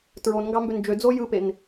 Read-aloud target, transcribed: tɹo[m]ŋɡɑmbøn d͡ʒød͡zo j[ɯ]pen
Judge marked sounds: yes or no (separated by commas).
no, yes